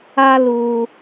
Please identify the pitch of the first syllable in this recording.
high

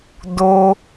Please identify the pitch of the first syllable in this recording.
high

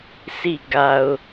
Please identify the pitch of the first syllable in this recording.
falling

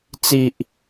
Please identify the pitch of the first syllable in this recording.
low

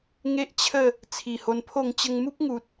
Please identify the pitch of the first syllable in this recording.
high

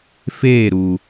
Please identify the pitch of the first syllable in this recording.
falling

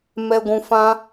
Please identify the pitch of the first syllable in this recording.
low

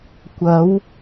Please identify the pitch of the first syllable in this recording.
rising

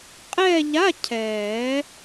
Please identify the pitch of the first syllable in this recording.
falling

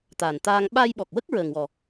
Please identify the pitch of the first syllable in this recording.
low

